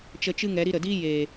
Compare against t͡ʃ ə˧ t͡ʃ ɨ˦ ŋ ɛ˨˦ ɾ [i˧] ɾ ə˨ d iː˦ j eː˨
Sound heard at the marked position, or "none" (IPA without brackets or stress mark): i˧